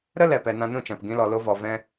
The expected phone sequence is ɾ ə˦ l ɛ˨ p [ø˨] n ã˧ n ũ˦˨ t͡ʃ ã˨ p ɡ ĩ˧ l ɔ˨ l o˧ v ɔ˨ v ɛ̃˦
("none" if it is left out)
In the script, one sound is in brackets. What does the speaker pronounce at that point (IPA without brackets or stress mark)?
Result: ɛ˨